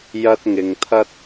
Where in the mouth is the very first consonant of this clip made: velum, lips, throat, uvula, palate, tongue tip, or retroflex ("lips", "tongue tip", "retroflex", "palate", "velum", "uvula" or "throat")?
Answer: palate